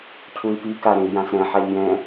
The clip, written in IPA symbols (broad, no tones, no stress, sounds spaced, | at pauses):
cʰ u i̯ p i k a ɾ ẽ i̯ j ã s ɾ ɛ̃ ħ a ʎ j ɛ̃